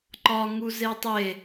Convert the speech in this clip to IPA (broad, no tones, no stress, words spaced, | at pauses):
ǃɒŋu zetˤe